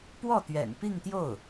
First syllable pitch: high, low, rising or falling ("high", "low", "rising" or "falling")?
falling